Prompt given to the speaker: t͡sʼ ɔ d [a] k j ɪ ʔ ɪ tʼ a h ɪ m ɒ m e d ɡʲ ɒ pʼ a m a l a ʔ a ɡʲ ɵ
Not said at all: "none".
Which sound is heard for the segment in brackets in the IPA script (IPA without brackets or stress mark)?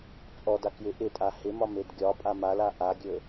a